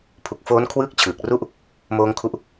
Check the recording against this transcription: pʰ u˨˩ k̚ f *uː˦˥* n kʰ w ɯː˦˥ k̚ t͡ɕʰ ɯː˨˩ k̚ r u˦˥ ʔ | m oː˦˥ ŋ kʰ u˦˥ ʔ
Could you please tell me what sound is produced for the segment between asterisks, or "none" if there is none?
oː˦˥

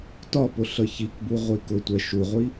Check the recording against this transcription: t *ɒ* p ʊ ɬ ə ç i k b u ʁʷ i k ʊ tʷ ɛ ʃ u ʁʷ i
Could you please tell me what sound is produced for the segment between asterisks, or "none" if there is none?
ɒ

